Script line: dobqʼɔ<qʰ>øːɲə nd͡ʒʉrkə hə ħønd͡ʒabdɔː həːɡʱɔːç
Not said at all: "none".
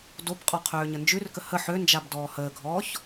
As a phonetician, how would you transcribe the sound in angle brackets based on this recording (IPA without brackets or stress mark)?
qʰ